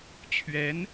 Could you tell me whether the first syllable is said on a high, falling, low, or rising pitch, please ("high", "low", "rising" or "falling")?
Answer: rising